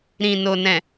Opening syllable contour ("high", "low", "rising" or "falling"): low